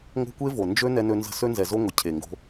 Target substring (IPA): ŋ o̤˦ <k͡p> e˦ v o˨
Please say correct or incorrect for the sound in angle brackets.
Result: incorrect